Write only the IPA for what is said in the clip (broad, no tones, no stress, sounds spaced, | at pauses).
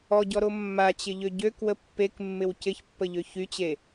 ɔ ɟ ɔ ɾ o mː a t͡ɕ ɪ ʎ ø ɟ ø k w ə pː e k mː ɪ w c ɪ ç pː ə ʎ ø ç y t͡ɕ e